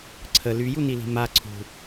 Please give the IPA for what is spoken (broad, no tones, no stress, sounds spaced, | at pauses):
ǀʰ ə l y j u n i l i̤ m a ǀʰ ṳ